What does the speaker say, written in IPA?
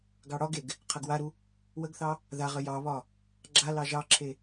ɡ ɑ ɽ ɒ ɡ e ɡ | qʰ ɐ ɡ w a ɾ u | w ə ɡ θ ɑ | ð a ʁ ə j ɑ β ɒ | ɡ͡ǁ a l ɑ ʒ ɑ ǁʰ e

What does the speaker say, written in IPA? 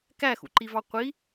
k æ x ṵ ǃ i v ɑ qʷ i

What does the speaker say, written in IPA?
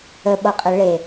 ə ɓ ʌ qʼ ə ɭ e

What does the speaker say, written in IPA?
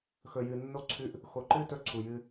x ɵ˨ j ɨ˨ nː o˧ ǀʰ ʉ˧ ʔ | x o˨ ǃ ɨ˧ t ɵ˧ ǀʰ u˨ j ɨ˧

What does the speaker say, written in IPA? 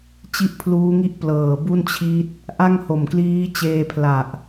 t͡ɕ i˥˩ ʔ pʰ l uː˦˥ ŋ i˥˩ ʔ p l ɤː˨˩ b u˥˩ n t͡ɕʰ i˦˥ t̚ | ʔ a˥˩ ŋ h o˨˩ m k l iː˦˥ t͡ɕ eː˧ pʰ l a˨˩ ʔ

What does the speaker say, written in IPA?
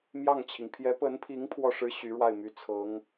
m j ɑ˥˩ ŋ t͡ɕʰ i˩ ŋ pʰ j ɛ˧˥ p ə˧˥ n pʰ i˧˥ ŋ pʰ w ɔ˥˩ ʂ ɻ̩˥ ɕ y˧˥ ɻ w a˥˩ ɪ̯ m y˧˥ t͡sʰ ɤ˧˥ ŋ

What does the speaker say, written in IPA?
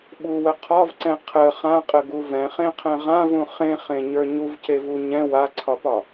ɓ u w ə qʰ ɒ v ǀ ɛ̃ qʰ ə χ ã qʼ ə ɡ u v ɛ̃ χ ẽ qʰ ɛ̃ ʁ ã v ũ χ ẽ χ ẽ ɲ ə˞ ɲ u v c e v u ɲ ɛ̃ w a ǀʰ ɒ p ɒ

